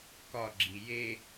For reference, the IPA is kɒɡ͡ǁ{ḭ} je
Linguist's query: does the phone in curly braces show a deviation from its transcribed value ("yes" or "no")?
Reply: yes